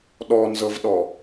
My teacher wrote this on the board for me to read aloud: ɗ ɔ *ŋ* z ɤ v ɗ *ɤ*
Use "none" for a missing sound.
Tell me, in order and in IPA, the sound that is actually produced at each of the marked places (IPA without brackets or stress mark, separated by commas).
n, ɔ